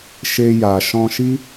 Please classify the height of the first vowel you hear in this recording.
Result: mid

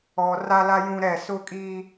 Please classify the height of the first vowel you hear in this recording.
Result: mid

